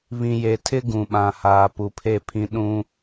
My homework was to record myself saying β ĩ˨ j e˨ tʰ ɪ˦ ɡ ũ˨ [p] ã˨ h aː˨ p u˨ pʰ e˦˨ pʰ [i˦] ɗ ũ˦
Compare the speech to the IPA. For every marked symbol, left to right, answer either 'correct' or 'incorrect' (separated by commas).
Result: incorrect, incorrect